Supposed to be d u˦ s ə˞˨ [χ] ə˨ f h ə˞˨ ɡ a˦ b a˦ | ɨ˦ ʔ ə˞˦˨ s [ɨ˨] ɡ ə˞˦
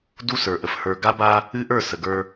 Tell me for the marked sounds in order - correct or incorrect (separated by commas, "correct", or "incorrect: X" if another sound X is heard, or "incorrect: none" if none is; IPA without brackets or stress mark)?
incorrect: ʔ, incorrect: ə˨